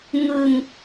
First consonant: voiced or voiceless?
voiced